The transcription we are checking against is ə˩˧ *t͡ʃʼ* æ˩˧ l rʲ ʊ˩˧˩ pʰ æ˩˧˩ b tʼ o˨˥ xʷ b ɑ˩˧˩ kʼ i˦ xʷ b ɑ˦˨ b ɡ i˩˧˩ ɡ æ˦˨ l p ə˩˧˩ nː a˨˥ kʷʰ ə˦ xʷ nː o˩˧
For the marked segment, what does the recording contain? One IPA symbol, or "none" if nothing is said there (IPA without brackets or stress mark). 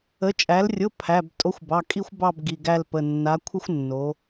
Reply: t͡ʃʼ